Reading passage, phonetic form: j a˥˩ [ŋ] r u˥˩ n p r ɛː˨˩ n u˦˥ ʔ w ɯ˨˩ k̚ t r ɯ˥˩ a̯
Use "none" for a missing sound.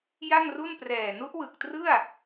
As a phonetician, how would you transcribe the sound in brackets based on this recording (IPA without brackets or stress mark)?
ŋ